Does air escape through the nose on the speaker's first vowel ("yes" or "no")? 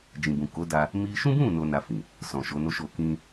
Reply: yes